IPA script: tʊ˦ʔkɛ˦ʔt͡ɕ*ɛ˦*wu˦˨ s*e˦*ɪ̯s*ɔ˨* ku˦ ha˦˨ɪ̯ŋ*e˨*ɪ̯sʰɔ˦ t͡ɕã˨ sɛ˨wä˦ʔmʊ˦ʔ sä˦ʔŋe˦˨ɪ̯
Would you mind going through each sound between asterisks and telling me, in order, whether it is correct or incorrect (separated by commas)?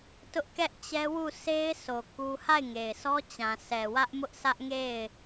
correct, correct, incorrect, correct